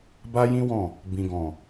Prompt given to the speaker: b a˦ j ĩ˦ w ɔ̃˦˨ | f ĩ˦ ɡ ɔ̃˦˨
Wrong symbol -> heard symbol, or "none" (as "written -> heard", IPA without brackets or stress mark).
f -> b